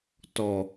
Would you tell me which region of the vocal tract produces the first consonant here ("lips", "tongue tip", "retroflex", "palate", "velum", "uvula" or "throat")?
tongue tip